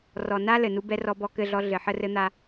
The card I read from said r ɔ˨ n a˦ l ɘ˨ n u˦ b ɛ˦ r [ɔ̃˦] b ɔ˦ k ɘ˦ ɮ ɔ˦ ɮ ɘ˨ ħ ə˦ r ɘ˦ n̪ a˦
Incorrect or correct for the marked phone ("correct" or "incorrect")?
incorrect